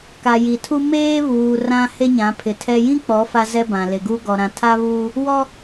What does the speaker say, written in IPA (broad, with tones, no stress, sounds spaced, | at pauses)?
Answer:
k a˨ j i˨ tʰ u˦ m eː˦ β uː˨ r ã˦ h e˦ ɲ ã˨˦ pʰ ɪ˨ tʰ ɛ˦ j ĩ˦ k͡p ɔ˨˦ f a˦ z ɛ˦ b ã˨ l e˨ ɡ u˦ ɡ ɔ˨ ɾ ã˨ tʰ a˦ β uː˦ | w ɔ˦